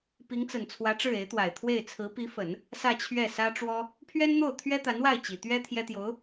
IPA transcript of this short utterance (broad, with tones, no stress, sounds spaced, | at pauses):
p i˧˥ ŋ t͡s ə˨˩ n t͡sʰ w ä˧˥ ʈ͡ʂ ɻ̩˥˩ e˧˥ ɪ̯ t̪ w a˨˩ ɪ̯ t̪ʰ w e˥˩ ɪ̯ t͡sʰ ɹ̩˧˥ p i˧˥ f ə˨˩˦ n | s ä˥˧ t͡ɕʰ ɥ ɛ˥˩ s ä˥ ʈ͡ʂ w ɔ˥ | pʰ ɥ ɛ˥ n n̪ o˥˩ ʊ̯ t̪ʰ ɥ ɛ˥ t̪ a˧˥ n w a˥˩ ɪ̯ t͡ɕ i˨˩ t̪ ɥ ɛ˥ t̪ʰ j ɛ˥ t̪ j o˧˥ ʊ̯